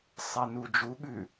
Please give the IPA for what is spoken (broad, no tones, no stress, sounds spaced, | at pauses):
sˤ ɛ n u d͡ʒ u ɠ ʉ